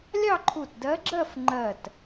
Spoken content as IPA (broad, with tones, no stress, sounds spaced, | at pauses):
lʲ ɑ˥˧ ǃʰ u˧˩ t d ɜ˧˥ ɡ͡ǁ ɜ˥˧ f ŋ͡ǃ ɜ˧˩ t